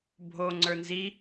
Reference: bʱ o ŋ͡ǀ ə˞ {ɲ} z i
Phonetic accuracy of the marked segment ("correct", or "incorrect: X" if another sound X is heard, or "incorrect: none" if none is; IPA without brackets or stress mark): incorrect: n